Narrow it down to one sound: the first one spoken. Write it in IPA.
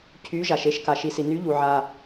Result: cʰ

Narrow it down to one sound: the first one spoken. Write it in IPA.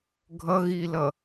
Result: ɡʱ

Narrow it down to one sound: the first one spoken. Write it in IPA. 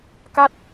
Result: k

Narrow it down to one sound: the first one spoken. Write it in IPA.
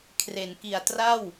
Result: kʰ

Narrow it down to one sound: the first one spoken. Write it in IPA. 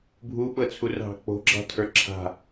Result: bʱ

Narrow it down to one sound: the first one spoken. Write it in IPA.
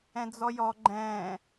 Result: ɛ̃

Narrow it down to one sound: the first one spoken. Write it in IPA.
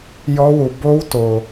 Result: j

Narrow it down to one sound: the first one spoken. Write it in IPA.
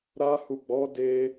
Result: ɾ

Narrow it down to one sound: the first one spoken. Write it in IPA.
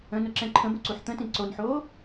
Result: ə̃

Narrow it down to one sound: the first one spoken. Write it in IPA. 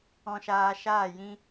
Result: ɔ̃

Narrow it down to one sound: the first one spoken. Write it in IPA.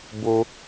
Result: b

